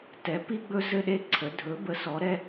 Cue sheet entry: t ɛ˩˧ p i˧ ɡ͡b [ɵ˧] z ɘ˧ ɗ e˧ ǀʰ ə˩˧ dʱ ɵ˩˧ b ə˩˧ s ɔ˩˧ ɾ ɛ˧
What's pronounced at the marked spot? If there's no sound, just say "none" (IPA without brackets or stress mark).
ɵ˧